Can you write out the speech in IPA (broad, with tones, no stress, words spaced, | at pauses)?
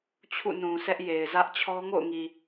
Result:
t͡ɕʰṵ˦˨nũ˨sɛ˦ʔ je˨ɪ̯zä˦ʔt͡ɕʰɔ˦ ŋo̰˦˨ʊ̯ŋi˨